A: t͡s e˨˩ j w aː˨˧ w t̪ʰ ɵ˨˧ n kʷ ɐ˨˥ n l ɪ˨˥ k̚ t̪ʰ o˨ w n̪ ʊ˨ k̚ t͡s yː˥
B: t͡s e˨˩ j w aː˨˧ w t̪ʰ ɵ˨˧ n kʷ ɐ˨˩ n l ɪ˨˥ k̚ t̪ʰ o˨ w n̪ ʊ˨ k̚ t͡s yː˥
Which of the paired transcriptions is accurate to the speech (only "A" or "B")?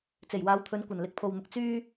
B